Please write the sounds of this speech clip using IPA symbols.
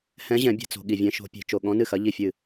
hɛ̃˧˥ʑɛ̃˨˩˦ bʲɛ̤˨t͡so̤˨ ɠi˨vʲɛ̃˧˥ʃo̤˧˥ pʲe̤˨˩˦t͡ʃo˨ ɠɔ̃˧˥nɨ˥˩xɐ˧˥ ʎi˥˩fʲɨ˥˩

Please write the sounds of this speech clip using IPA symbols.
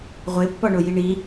ʁʷepːɒɳoji ɳi

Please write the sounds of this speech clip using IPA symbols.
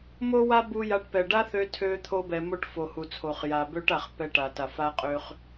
mo˥wa˥ bu˧ja˧ʈ pɛ˩ɖa˥θø˧ tʰø˧ t̪ʰo˧bɛ˩mo˧ʈ fo˩hu˩t͡sʰo˩χ ja˩bø˧ʈ a˩χ pɛ˧ʈa˩ta˩ fa˧qʼø˧χ

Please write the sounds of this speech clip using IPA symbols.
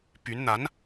py˧˥n n̪a˧˥n

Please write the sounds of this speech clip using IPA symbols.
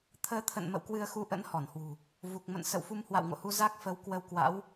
t̪ʰəː˨˦t̪ʰə̰˧˨n mə̰˧˨wkwɨ˧ə̯xu˧ʔə̰˧˥n hɔ˧˩nhwṳ˨˩ | vu˨˩k̚ mə̰˧˨nsə̰˧˨w fu˧mhwa̰˧˨wŋo̰˧˨hu˧ za˦˥k̚ fə˨˦w kwə˧wkwa̰˧˥w

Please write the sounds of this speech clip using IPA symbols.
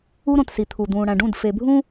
u˦ɾõ˨tsi˨t̪ʰu˨ d̪ũː˨ɽæ̃˨ɖũ˦˨d fe˨bʱũ˦

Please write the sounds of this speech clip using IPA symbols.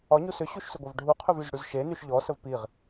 ɒɲu sʏɕuʃsʏɡʷɐv ɖʱuqʰʏvyzɽyz ʃenyʃ ʎɔsəv piʁ

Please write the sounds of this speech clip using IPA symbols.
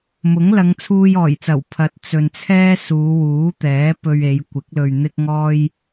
mʊ˨˥ŋlɐ˨˧ŋt͡sʰuː˧j ɔː˨˩jt͡sɐ˨˩w pʰɐ˨˥t̚ t͡sɵ˨nt͡sʰɛː˥ suː˨˧wuː˨˥t̪ɛː˨˥ pɵ˧ɥe˨˧jkʷɪ˨˥k̚ lɵ˨ɥn̪ɪ˧k̚ ŋɔː˥j

